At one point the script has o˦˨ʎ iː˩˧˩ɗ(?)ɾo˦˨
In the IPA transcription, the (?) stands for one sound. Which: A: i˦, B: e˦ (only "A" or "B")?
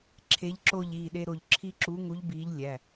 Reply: B